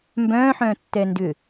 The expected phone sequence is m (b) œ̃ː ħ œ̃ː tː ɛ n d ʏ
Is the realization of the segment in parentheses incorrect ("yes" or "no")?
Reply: no